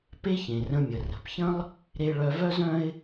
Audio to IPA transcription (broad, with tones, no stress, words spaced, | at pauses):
pe˥çẽ˩rə̃˧mʲə˩ rə̤˩pçə̃˥lˠ | ɾe˧ɭœ˧vœ˥zœ̃˥ɪ̯